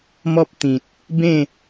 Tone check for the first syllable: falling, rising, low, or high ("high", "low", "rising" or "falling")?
high